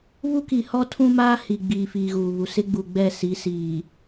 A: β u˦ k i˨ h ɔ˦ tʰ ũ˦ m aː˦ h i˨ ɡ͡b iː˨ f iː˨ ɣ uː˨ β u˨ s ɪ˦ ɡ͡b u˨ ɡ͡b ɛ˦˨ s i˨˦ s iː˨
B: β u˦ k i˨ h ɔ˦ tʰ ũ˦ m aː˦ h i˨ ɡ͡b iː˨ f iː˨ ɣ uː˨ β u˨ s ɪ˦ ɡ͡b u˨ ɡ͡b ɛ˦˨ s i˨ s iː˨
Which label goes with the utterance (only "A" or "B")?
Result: A